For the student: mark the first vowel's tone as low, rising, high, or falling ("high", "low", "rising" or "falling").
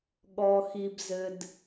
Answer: low